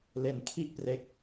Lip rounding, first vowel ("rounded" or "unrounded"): unrounded